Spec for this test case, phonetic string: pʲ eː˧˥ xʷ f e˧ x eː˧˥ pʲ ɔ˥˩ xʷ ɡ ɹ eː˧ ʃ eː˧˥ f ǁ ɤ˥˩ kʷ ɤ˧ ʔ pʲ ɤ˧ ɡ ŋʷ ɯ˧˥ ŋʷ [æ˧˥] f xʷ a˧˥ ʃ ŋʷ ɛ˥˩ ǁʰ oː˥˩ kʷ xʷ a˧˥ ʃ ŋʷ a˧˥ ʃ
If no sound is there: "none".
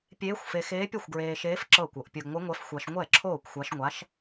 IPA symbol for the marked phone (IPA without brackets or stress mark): ɛ˧˥